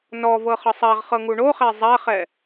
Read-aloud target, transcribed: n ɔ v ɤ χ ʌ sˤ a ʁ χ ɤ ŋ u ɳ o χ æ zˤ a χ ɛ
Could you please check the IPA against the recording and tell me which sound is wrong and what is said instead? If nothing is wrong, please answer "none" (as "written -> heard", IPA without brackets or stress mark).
none